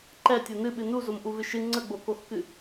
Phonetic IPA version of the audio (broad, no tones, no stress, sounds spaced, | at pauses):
ǃ ɛ tʲ o n ɨ ɓ ɨ n u z o m ʔ u v ɨ ʃ ɨ ŋ͡ǀ ə ɡ͡b o k o x k ɨ